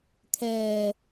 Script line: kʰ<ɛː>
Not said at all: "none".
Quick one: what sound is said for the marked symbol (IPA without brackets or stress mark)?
ɛː